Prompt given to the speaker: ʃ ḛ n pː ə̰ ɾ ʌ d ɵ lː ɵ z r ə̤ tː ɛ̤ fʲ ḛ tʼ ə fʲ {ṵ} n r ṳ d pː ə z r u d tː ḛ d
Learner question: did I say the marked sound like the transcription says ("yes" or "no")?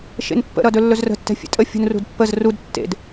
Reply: no